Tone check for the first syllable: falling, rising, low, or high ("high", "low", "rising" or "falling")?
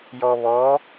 low